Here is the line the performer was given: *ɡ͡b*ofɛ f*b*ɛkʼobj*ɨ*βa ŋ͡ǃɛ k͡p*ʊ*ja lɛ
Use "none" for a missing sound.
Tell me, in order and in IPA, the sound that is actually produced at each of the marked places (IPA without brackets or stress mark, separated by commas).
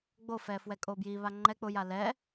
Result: ɡ͡b, w, i, ʊ